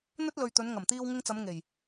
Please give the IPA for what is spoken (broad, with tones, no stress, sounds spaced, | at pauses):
n̪ ɵ˥ t̚ l ɵ˨ ɥ t̪ ɵ˨˧ n ŋ ɐ˨˩ m t̪ iː˧ w ŋ ɪ˧ ŋ t͡s ɐ˨˧ m ŋ e˨˩ j